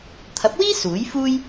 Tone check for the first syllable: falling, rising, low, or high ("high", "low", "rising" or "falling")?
rising